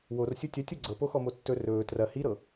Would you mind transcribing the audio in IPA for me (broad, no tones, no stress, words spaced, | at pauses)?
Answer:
worsʲo tʲɐtʲɤ ɡ͡ǀɤpoxɔmo tːɵ rɵː trɐ hiɾɤ